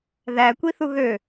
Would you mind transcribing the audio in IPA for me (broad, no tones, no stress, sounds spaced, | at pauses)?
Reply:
ð æ kʷ i θ u ɣ ø